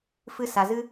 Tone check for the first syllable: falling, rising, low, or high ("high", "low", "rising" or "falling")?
high